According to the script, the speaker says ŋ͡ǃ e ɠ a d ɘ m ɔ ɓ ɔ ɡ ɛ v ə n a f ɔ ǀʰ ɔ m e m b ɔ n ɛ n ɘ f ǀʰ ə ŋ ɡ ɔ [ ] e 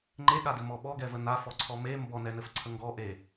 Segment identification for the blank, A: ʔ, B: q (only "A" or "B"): A